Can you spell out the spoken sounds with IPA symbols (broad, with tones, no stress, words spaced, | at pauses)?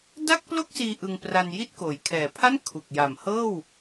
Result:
da˥˩k̚plo˥˩k̚siː˧ ʔɯ˧ŋpra˧n ji˦˥t̚koː˩˦j kʰɛː˨˩pʰa˥˩n kʰu˨˩k̚ja˨˩mhɤː˥˩w